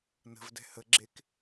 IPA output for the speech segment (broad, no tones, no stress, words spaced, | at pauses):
nə̤vdɛ̤ həɡ͡ǁek